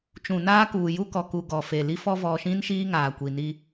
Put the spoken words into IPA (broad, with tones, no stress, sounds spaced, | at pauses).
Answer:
t͡ʃ ũ˨ n aː˦ k uː˨ j u˦ k ɔ˨ k u˨ ɡ ɔ˨ f e˨ l i˦ f ɔ˦ v ɔ˨ ʃ ĩ˦ n ʃ iː˦ ŋ aː˨ kʷ i˨ n i˦